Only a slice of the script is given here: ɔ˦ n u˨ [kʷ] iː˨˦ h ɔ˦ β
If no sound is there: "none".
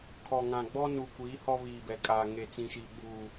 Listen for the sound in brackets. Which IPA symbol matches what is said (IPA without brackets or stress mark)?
kʷ